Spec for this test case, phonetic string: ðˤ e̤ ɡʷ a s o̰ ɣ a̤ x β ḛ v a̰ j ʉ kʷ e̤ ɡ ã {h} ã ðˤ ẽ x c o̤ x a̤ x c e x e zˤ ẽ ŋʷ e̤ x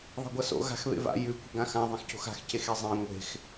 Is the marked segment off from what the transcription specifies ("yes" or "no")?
yes